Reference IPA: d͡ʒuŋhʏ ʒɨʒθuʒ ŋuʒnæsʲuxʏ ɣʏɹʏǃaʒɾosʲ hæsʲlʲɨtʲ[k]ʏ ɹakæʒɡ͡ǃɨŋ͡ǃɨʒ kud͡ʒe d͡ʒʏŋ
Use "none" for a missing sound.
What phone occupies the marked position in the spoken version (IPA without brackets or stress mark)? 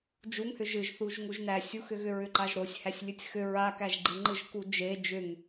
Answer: x